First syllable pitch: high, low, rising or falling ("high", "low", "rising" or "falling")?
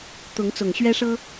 rising